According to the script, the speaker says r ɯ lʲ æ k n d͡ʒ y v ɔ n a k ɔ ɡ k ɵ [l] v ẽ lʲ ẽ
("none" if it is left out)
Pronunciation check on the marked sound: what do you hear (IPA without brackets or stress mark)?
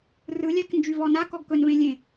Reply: n